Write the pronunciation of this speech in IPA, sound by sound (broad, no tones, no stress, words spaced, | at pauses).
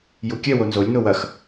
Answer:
jukʲɛ wonzolʲ nowɐx